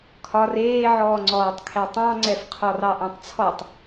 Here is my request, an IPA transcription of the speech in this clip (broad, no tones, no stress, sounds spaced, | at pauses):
kʰ ɒ r eː ʕ ɔː ŋ͡ǀ ɔː tˤ kʰ ɛ tˤ ɑ̃ ŋ͡ǀ ɛ f qʰ ɔ r ɑ ʔ ɑ̃ tˤ t͡sʰ ɔ tˤ